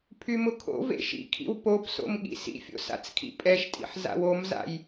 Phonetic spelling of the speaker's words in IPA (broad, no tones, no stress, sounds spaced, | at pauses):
pʰ y m ʊ kʰ o̰ v ḛ ʃ ḭ kʰ ḭ w p o p s o̰ m ɠ ḭ s ḭ fʲ o̰ s a̰ t͡s kʰ ḭ pʼ ɛ ʃ tʼ ḭ ħ z a̰ w o m z a̰ j